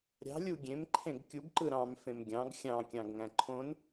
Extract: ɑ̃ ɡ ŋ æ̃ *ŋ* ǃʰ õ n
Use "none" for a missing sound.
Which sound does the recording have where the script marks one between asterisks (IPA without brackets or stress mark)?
none